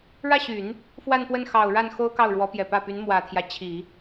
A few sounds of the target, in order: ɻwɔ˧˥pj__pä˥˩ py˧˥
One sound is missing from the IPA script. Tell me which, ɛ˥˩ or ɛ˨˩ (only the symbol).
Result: ɛ˨˩